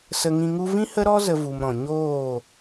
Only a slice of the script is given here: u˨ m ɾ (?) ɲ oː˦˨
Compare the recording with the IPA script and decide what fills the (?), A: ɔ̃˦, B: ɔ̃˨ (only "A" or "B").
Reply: B